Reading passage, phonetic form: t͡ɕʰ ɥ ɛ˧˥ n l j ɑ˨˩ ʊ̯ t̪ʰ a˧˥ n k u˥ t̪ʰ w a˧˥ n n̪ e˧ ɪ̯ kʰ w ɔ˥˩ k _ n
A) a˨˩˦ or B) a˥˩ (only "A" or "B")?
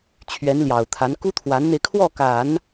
A